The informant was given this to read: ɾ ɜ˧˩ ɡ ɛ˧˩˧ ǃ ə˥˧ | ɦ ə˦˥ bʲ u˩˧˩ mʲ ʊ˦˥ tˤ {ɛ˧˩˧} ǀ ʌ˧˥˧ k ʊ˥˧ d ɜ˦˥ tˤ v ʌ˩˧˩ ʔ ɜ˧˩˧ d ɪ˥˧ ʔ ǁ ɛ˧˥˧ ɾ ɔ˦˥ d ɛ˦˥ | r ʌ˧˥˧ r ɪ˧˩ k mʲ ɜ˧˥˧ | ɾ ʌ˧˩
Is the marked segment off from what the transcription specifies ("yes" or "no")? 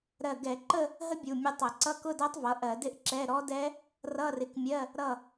yes